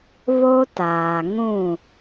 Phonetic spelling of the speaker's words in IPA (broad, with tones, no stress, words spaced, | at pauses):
βo˦taː˨ ŋũ˦˨